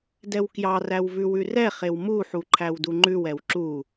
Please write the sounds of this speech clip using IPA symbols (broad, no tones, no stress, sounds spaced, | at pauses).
d ɛ w k j ɑ r æ w v ʉ w ʉ r ɛ χ e w m u ħ u ǃʰ æ w d u ŋ͡ǃ ʉ w ɛ w ǁ u